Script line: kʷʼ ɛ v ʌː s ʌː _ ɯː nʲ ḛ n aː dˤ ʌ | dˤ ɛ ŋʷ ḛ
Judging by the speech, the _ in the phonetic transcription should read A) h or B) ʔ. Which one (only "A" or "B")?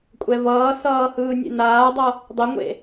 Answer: A